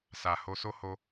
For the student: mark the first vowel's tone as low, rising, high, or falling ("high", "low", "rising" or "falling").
low